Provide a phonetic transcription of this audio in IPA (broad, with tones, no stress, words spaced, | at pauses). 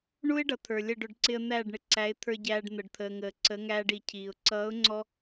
ɳu˦ɪ̯ ɖʌ˨t̪ʰə˞˨lʲə˦˨ɖʊ˧ɖ ǀɪ˧ə̯n̪æː˦˨ɖɳɪ˧ ǀæ˨˦ɪ̯t̪ʰə˞˧ ɟæː˧ɖ n̪ə˨ɖt̪ʰəː˨ŋəː˨ ǀə˨˦ŋæː˧ɖi˨ cʰiː˨ʊ̯ ǀʌː˨˦ʊ̯ŋ͡ǀɔ˧